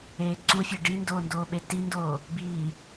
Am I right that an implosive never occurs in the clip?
no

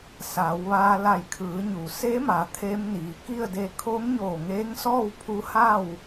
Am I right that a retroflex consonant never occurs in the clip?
yes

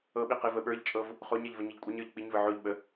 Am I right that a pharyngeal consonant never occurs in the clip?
no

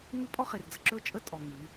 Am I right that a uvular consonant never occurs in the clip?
no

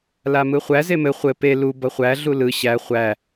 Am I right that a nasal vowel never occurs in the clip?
yes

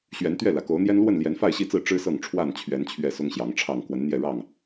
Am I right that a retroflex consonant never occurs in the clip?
no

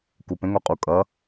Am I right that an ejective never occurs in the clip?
no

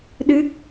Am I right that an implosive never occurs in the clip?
no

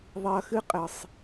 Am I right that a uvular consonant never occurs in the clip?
no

